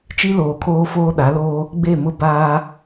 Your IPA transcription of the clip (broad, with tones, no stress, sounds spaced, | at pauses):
t͡ʃ i˦ l oː˨ kʰ oː˦ f oː˦ ɗ a˨˦ l oː˦ | ɡ͡b e˦˨ m ʊ˦ b aː˦